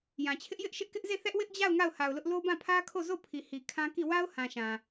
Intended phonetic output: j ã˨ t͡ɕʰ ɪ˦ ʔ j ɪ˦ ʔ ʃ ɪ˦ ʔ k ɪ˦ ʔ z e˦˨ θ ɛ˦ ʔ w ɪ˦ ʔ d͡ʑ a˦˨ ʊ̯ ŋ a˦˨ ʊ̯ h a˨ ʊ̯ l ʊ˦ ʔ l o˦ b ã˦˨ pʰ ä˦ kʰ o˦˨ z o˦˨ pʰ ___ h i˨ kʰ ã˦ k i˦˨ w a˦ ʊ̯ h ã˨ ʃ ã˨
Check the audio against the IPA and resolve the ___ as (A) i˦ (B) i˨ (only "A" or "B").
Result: B